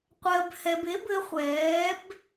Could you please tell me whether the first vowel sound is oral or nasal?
oral